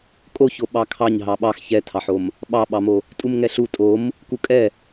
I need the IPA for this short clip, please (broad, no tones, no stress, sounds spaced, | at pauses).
kʼ o ç o ɓ ɑ kʰ ɑ ɲ ɦ ɑ ɓ ɑ x ç ɛ tʰ ɑ ħ o m | ɓ ɑ ɓ ɑ m o | tʼ u m ŋ ɛ ɬ u tʼ o m | k u kʼ ɛ